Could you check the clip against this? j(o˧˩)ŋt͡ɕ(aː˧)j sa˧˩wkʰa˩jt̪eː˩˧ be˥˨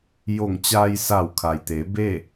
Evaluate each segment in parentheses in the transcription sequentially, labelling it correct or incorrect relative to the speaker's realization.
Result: correct, correct

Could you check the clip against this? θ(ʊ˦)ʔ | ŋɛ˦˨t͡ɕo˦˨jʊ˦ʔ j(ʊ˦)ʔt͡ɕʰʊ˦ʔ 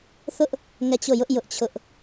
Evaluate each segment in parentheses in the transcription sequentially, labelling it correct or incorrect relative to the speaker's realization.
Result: correct, correct

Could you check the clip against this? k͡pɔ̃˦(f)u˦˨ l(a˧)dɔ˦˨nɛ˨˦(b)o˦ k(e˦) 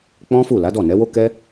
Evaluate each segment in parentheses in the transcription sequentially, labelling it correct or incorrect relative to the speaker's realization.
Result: correct, incorrect: a˨˦, incorrect: w, incorrect: ɛ˦

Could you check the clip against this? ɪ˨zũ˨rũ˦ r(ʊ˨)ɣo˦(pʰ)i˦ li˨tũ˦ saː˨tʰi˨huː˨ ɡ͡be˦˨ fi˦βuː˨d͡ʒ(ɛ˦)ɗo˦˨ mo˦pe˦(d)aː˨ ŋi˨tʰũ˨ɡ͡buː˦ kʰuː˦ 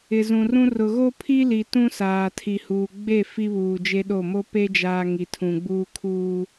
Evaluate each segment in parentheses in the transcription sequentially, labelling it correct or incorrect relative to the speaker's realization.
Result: correct, correct, incorrect: e˦, incorrect: d͡ʒ

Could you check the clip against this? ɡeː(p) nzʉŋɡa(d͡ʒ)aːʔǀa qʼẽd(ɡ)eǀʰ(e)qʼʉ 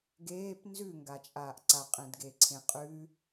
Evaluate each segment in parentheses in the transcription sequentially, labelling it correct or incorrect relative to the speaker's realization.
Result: correct, incorrect: t͡ʃʼ, correct, incorrect: ẽ

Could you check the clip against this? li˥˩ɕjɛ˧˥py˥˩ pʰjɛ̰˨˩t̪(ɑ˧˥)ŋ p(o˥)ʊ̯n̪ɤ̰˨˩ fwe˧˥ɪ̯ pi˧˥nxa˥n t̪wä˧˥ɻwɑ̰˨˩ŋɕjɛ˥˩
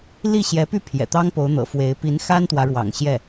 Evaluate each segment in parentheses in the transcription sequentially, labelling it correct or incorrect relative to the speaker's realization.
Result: incorrect: ɑ˥, incorrect: o˧˥

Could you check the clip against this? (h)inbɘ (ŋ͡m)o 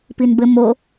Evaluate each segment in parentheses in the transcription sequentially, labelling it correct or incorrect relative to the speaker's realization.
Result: incorrect: p, incorrect: m

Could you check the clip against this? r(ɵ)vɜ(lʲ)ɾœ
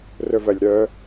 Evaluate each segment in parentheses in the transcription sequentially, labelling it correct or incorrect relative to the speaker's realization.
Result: correct, correct

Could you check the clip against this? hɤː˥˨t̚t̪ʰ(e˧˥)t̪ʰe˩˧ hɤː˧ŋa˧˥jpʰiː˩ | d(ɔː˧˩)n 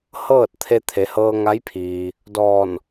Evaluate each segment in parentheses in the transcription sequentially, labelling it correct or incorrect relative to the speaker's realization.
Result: incorrect: e˧, correct

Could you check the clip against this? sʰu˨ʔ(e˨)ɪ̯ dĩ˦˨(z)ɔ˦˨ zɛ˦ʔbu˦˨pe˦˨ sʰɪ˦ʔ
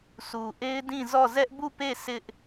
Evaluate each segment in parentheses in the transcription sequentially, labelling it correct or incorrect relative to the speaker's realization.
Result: incorrect: e˦, correct

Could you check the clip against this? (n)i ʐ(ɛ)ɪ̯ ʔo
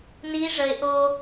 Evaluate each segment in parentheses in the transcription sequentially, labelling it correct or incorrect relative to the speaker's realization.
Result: correct, incorrect: ə

